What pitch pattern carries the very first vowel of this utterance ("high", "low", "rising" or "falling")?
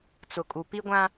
low